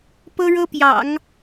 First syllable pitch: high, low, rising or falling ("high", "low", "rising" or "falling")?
high